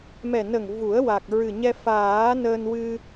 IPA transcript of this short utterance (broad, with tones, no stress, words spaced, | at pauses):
mɛ˨˩nə˨˩ŋ vu˨˩˦ə̯ wa˨˩k̚ ɹɨ˨˩ɲɛ˧ faː˨˩˦ nəː˧nwɨ˧